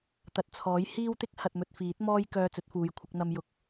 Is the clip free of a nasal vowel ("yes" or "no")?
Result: yes